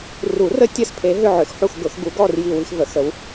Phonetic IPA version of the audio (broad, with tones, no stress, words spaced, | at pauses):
ru˨˩˦rə˧˥ tʲɐ˥˧s pʰe˧˥ɦʏ˥˧ ʕʏ˨˩˦xħu˥˧xɡʊ˨˩˦xɡu˧˥ ɡɔ˥˧r ji˥˧wi˥x və˨˩˦xə˧˥w